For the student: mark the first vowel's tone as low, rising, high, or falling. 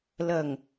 low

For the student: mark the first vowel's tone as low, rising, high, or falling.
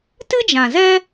high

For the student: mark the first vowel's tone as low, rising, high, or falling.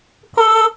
high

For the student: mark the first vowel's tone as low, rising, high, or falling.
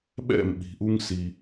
falling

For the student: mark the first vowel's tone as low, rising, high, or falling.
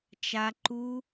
high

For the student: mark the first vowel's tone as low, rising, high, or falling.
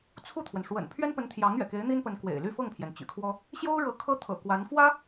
falling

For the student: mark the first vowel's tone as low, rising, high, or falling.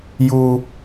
high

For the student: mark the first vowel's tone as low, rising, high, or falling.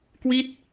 falling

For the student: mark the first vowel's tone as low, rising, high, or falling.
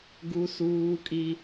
high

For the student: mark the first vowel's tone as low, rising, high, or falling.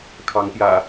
rising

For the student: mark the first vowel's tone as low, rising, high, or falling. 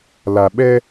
low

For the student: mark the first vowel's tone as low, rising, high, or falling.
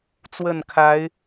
falling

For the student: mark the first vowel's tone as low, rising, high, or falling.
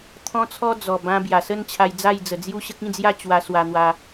high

